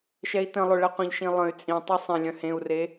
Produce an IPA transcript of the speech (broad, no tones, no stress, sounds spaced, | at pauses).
ʃ ɛ i̯ t ə̃ lˠ ø ɭ ɛ qʷ ə̃ ʎ ʃ ĩ lˠ ə̃ y̯ t͡sʼ ĩ tˤ e sˤ ẽ lʲ œ̃ h ẽ u̯ r e